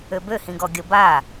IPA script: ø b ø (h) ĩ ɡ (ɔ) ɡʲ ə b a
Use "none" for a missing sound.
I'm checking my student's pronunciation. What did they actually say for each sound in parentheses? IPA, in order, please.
h, ɔ

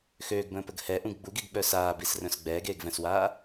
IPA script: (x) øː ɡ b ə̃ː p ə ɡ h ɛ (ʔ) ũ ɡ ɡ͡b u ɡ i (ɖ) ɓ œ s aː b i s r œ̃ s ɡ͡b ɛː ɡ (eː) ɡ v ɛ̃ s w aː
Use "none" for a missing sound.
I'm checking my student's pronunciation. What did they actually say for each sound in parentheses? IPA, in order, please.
x, ʔ, ɡ, eː

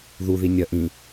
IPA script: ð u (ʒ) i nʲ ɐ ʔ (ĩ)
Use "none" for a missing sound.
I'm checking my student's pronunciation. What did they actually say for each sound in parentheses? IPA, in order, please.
ð, ĩ

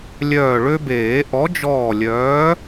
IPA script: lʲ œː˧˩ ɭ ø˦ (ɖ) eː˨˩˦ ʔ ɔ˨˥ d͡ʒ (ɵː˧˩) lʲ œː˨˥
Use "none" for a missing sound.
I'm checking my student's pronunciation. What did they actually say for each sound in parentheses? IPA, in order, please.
b, ɔː˧˩

